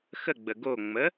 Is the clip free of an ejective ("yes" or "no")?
yes